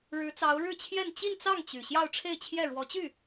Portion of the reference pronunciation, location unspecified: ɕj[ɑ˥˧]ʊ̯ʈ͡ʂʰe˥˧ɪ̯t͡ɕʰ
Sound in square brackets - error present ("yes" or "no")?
no